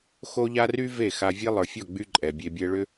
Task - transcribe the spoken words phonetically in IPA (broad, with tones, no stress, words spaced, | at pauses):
xo˦ʎa˦ ry˦ ve˦˨xa˧vʲe˦ lˠə˞˨fʲɔ˦˨ɡ͡by˧ ǃʼɛ˨bʲe˧bʲɛ˦ ɭʏ˦